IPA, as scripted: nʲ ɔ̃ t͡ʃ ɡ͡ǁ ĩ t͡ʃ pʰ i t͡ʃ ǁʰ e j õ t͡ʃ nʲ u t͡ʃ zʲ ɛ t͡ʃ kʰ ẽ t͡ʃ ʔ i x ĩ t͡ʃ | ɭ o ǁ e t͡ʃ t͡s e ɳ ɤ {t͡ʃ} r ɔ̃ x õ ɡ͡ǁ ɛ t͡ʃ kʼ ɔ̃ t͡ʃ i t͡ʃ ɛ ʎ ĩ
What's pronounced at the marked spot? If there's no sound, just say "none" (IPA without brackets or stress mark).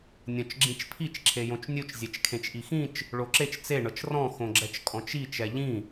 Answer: t͡ʃ